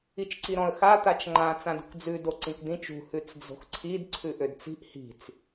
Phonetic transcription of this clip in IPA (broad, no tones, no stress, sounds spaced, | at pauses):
i t͡ʃ ǀ i ɾ ɔ̃ ə̯ x a t̪ a t͡ʃ ŋ͡ǃ ã t͡s ã d ṳ k d͡z ʉ d o ǀ ĩ k d̪ ĩ t͡ʃ ṳ h ʉ t͡s d͡z o̤ x ǀʰ i d ǀʰ ʉ ʔ ø d t͡s i̤ ʔ h i̤ t͡s